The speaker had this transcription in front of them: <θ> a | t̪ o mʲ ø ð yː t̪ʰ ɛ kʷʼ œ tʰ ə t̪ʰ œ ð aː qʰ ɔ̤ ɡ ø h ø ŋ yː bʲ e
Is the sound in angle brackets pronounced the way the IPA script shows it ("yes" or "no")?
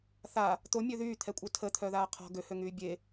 yes